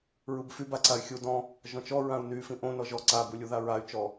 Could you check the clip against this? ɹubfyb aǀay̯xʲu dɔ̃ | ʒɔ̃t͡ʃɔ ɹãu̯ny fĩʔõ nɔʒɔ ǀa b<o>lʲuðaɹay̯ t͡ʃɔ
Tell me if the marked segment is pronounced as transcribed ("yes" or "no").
no